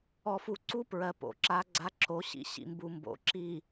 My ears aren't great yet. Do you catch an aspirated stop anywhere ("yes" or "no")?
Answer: no